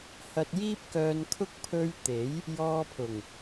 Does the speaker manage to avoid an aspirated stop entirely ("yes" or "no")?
no